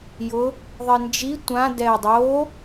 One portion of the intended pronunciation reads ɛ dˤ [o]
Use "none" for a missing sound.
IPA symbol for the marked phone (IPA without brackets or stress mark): o